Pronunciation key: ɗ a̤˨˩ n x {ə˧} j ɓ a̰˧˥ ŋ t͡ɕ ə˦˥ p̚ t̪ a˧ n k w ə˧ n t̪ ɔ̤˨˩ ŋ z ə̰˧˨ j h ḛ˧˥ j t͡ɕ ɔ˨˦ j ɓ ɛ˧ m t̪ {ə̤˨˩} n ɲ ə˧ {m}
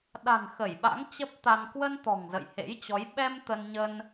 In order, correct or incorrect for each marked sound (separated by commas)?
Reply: incorrect, incorrect, incorrect